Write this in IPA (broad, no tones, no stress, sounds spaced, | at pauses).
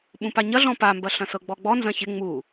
ɓ ũ p a ɲ ɐ ɮ ɔ̃ p a m b ɐ ɬ ɐ̃ s ɤ ɡ͡b ɔ ɡ͡b ɔ n z ɐ̃ ç ɪ ŋ͡m u